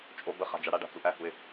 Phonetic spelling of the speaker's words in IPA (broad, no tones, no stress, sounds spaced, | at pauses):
t͡ʃʼ o b ə χ a̤ d͡ʒ a ɽ a ɖ a̤ t͡s u ʔ æ h u ɪ̯